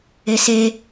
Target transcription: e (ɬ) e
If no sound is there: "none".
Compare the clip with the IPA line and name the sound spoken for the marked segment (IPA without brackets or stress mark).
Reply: s